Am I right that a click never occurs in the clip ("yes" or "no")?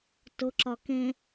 no